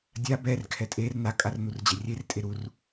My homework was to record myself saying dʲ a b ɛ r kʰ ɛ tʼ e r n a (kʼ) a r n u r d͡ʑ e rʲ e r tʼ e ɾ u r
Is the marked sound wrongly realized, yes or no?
no